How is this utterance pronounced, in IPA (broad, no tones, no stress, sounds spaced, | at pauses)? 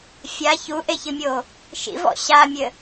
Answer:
fʲ a ç u ʔ e ç ɨ mʲ o | ʃ ḭ v ɔ̰ ɕ a mʲ ɘ